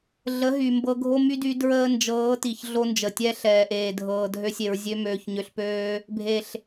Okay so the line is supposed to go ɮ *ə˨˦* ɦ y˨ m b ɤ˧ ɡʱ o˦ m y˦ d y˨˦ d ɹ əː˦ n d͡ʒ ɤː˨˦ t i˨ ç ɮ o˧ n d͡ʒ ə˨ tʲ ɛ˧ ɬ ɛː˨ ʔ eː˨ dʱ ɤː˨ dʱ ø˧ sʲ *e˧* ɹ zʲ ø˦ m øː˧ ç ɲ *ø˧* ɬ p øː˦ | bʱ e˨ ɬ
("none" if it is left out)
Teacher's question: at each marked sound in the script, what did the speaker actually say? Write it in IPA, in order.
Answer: ə˨˦, e˨, ø˧

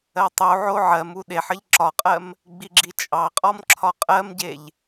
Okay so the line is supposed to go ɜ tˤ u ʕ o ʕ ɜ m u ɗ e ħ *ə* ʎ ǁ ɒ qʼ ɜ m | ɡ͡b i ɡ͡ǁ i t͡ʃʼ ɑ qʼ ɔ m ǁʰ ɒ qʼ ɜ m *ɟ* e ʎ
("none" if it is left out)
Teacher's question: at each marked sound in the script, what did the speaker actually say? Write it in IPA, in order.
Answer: ə, ɟ

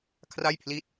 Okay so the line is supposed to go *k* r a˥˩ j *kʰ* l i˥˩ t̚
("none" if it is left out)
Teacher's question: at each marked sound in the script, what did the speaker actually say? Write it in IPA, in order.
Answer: kʰ, pʰ

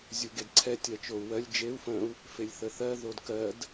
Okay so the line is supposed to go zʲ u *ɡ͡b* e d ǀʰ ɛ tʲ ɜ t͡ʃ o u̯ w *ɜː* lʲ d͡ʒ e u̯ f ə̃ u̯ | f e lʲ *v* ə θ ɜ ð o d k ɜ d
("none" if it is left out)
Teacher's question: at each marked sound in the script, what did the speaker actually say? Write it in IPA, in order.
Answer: ɡ, ɜ, θ

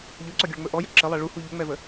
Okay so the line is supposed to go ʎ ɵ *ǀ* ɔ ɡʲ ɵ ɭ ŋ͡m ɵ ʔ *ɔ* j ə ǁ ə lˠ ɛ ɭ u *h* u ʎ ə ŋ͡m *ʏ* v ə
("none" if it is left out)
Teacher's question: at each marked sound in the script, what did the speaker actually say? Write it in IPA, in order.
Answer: ǀ, ɔ, h, ɛ

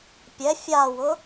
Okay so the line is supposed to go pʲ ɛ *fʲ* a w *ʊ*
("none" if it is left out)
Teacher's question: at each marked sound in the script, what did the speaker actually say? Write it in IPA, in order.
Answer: fʲ, ʊ

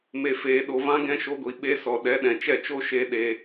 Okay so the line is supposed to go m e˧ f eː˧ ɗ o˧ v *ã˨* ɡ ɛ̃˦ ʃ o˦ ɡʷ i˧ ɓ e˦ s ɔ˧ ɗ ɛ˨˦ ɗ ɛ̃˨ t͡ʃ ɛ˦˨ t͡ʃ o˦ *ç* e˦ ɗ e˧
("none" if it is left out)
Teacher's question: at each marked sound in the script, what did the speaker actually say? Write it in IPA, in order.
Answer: ã˦, ʃ

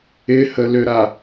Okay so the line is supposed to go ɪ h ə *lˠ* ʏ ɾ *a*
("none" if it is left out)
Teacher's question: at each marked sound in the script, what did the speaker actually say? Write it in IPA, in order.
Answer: l, a

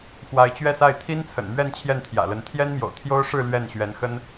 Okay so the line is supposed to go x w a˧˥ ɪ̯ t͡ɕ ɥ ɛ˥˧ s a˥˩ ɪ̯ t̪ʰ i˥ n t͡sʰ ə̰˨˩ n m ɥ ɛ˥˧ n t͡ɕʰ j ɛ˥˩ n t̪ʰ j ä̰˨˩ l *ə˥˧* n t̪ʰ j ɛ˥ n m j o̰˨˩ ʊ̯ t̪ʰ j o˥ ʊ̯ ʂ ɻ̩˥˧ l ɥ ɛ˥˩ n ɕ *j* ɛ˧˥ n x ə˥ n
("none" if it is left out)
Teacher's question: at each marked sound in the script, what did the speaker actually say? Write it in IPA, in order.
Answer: ə˧˥, ɥ

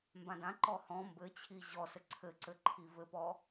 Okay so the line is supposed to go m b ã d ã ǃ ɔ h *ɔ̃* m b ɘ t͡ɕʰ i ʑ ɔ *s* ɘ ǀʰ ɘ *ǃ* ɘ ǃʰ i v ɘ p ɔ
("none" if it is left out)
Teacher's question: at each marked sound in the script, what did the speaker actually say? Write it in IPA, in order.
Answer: ɔ̃, s, ǀ

